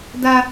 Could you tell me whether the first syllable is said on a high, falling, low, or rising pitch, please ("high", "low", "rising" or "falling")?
high